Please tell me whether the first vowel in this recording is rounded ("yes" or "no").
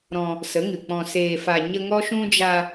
yes